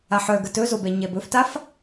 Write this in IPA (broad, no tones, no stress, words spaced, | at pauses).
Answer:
aħœɡə tɵzobɛ ɲɛbɵftaf